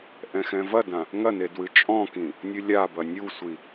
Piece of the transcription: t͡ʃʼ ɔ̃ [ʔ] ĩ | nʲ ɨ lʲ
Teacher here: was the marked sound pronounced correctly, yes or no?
no